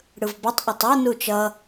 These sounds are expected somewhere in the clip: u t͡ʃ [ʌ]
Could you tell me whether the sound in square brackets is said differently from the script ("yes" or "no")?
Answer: no